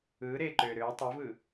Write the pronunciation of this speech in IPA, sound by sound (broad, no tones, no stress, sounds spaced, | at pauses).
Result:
ɯː ɾ eː ǃ øː ɾ øː tˤ u v ɯ